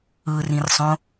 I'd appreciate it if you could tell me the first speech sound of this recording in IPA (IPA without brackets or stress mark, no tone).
ɯ